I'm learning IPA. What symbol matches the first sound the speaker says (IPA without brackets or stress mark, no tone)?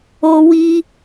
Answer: o